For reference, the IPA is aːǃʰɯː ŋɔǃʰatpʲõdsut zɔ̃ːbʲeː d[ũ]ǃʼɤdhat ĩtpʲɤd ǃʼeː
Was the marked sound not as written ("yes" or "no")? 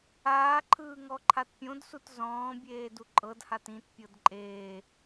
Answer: yes